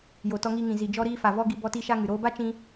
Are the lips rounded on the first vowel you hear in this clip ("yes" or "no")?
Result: yes